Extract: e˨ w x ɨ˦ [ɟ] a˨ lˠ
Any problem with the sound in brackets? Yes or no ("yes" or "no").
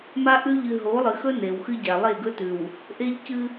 no